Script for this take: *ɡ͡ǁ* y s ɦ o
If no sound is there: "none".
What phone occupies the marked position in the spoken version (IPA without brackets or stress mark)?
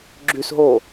ɡ͡ǁ